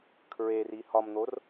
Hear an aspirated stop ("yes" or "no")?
yes